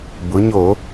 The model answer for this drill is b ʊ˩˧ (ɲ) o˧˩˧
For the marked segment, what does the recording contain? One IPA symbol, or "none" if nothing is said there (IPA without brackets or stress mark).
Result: ɲ